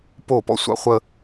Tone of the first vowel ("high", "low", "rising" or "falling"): falling